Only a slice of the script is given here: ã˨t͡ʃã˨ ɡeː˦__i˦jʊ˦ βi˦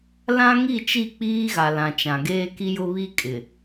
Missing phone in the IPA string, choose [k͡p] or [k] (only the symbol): k